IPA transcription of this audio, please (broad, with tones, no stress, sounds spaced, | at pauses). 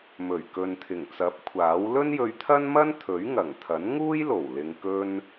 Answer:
m ɵ˨˩ ɥ k ɵ˨ n t̪ʰ ɪ˨˩ ŋ t͡s ɐ˨˥ p̚ kʷʰ aː˨˥ w l ɵ˥ n j ɵ˧ ɥ t̪ʰ ɐ˥ n m ɐ˥ n t̪ʰ ɵ˨˥ ɥ ŋ ɐ˨˩ ŋ t̪ʰ ɐ˨˥ n ŋ uː˥ j l o˨˩ w l ɪ˨ ŋ k ɵ˧ n